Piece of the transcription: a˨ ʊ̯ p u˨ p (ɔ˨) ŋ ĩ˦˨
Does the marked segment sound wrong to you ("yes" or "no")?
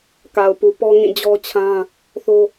yes